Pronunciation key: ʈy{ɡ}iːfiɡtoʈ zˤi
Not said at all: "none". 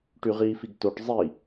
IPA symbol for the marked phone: ʁ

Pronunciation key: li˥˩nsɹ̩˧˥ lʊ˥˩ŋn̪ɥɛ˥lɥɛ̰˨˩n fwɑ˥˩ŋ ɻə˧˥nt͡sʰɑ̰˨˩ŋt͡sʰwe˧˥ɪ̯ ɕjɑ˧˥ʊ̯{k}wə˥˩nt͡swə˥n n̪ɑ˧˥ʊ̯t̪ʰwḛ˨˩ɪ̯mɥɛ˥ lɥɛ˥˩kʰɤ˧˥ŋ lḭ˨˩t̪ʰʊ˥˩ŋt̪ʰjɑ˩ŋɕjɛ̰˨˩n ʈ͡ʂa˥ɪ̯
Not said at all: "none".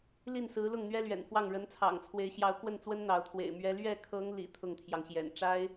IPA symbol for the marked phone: k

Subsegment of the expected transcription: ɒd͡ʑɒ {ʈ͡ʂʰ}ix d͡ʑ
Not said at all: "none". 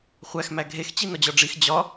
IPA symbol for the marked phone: ɖ͡ʐ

